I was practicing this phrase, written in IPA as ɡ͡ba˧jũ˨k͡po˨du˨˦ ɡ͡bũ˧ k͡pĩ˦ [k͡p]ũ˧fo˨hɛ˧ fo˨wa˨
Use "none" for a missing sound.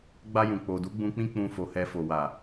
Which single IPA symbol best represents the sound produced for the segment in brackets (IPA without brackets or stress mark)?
k͡p